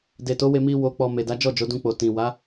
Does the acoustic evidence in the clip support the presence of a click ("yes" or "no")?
no